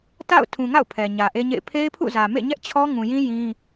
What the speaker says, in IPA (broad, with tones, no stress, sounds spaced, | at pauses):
t a̰˦˨ ʊ̯ tʰ ũ˨ ŋ a̰˦˨ ʊ̯ pʰ ɛ˨ ɲ ä˨ ʔ e˦ ɲ ḛ˦˨ ɪ̯ pʰ e˦ ɪ̯ pʰ ṵ˦˨ z ä˨ m ḛ˦˨ ɲ ɛ˦ ʔ t͡ɕʰ ɔ˦ ŋ ũ˨ j ĩ˦ j ĩ˦